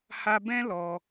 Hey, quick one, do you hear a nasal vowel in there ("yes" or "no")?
yes